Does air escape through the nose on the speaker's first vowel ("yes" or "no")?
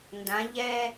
yes